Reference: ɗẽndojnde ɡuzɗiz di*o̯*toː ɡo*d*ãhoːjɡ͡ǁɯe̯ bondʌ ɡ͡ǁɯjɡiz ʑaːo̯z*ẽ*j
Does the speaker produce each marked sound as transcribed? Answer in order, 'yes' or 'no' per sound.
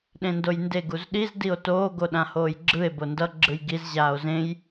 yes, no, yes

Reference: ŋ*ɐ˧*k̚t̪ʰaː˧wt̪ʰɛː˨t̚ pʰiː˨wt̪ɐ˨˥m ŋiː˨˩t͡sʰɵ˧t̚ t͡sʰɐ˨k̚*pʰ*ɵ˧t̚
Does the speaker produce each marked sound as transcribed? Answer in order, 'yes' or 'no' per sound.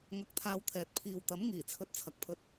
yes, yes

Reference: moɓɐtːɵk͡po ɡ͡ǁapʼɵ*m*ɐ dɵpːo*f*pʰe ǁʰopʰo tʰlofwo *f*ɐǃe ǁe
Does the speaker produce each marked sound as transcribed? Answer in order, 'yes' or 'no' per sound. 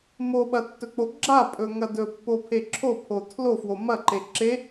no, no, no

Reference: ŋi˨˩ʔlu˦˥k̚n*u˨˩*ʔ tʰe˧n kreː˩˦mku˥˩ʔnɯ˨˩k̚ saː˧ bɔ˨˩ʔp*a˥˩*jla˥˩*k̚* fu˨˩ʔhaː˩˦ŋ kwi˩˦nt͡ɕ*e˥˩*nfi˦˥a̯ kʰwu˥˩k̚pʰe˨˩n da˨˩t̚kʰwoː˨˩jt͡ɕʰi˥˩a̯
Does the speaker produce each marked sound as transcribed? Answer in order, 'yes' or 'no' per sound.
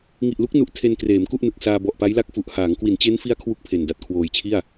yes, no, yes, no

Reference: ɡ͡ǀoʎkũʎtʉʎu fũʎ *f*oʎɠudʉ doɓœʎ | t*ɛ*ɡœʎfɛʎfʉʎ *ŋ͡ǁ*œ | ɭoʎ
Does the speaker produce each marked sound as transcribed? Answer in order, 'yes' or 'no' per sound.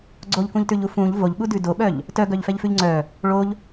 no, no, no

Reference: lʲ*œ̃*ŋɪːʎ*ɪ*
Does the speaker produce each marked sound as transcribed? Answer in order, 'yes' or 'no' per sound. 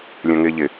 yes, yes

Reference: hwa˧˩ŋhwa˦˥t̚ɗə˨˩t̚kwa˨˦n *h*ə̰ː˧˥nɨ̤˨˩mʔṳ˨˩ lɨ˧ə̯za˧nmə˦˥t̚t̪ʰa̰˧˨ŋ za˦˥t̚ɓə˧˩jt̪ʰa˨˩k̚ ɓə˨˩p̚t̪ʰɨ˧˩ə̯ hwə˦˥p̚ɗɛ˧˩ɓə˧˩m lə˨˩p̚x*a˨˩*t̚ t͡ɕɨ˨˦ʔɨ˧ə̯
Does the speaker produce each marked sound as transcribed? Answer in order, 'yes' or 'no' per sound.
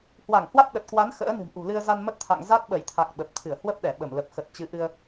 no, no

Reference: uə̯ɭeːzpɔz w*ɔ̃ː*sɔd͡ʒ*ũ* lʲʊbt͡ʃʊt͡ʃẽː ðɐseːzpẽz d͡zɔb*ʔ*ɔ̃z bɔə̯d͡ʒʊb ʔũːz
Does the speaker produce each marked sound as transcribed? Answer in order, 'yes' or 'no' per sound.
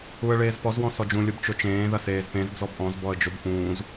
no, yes, yes

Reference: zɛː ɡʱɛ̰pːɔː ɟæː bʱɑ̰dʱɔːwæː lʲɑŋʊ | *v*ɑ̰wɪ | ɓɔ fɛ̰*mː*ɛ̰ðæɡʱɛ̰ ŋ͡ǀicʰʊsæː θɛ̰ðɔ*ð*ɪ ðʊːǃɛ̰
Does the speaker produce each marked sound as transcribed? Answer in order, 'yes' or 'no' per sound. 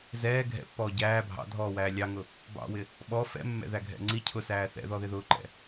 no, yes, yes

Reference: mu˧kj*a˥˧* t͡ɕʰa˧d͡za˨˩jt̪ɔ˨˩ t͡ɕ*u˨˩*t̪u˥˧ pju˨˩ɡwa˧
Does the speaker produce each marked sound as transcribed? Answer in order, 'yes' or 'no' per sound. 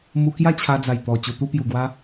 yes, yes

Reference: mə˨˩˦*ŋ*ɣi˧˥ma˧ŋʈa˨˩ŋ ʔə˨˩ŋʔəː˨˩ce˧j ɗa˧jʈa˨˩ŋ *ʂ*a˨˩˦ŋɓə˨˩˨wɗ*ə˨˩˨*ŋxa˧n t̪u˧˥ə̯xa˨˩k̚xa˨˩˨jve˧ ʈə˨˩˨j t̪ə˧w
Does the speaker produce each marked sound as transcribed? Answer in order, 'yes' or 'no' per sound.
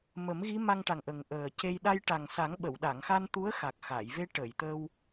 no, no, no

